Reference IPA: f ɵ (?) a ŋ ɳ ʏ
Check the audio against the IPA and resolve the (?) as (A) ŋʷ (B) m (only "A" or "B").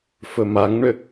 B